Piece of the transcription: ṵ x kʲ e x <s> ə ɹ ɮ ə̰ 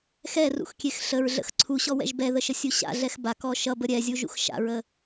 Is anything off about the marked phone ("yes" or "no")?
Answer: yes